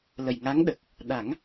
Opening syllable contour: low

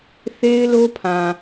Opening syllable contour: high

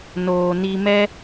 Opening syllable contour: low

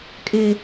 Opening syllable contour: low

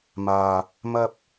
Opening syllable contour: low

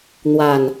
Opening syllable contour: low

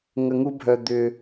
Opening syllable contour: low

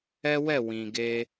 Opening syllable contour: high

